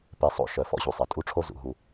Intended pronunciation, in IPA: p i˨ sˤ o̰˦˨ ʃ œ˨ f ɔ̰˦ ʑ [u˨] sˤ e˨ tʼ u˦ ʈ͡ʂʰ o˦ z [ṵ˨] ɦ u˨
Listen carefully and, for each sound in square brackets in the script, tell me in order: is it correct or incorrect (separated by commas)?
correct, correct